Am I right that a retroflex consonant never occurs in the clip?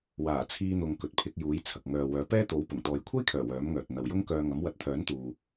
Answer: yes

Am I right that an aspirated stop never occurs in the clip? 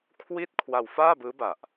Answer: no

